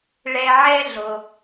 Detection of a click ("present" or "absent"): absent